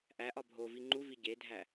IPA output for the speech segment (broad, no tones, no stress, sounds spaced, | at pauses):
ʔ æ ʔ ɒ bʱ o v i ŋ͡ǃ u v i ɟ e dʱ æ